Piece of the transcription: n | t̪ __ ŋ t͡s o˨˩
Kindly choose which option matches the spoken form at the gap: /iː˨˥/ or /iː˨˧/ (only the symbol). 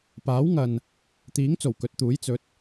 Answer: iː˨˥